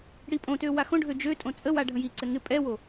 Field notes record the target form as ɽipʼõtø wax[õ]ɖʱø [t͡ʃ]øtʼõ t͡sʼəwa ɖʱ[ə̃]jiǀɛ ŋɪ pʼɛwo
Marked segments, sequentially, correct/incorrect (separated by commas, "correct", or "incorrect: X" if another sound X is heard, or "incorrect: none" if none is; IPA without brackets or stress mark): correct, incorrect: d͡ʒ, correct